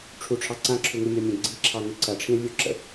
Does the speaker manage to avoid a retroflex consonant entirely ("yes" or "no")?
no